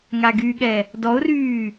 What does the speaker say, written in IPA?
ŋaɡyɠɛ | dɔʊ̯ryː

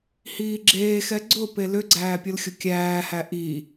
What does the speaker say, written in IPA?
hiːɡ͡ǁeːxɛ ɡ͡ǀʊ pelʏɡ͡ǀæː pʲʊlxʲʊkʲæːhæ ʔi

